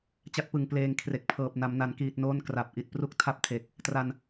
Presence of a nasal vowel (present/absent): absent